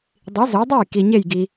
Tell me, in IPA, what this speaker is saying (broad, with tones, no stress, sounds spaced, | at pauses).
dˤ i˩˥ z o˩˥ dˤ e˥˩ j k i˩ ɲ e˥˩ j ɡ i˩